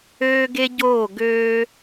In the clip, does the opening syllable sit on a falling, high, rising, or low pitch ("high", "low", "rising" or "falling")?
high